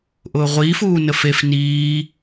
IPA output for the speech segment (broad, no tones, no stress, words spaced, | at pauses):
ʔʊːʁʷiːf uːnəfef niː